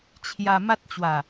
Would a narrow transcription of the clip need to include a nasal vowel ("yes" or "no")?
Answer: no